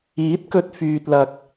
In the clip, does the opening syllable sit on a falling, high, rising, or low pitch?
rising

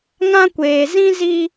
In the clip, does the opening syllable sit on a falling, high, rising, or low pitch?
high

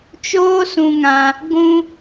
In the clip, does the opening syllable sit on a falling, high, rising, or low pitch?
high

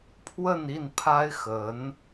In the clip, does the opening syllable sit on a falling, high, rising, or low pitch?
falling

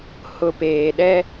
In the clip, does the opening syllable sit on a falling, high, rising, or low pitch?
low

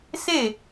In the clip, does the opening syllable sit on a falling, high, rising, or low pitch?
falling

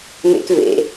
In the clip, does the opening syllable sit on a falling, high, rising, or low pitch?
high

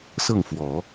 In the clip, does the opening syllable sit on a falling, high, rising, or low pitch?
falling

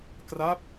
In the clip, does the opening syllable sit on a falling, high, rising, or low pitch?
falling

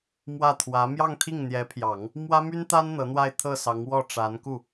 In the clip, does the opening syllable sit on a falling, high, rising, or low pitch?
falling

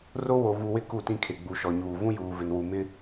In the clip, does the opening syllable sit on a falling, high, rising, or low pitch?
high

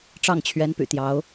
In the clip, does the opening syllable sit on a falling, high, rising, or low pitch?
falling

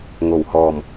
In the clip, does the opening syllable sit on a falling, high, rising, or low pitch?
low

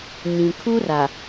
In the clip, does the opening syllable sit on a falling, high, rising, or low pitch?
low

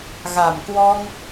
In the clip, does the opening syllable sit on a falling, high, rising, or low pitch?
low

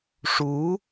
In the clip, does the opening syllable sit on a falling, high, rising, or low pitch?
rising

